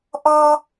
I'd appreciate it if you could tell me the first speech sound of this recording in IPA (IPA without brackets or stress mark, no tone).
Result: ʔ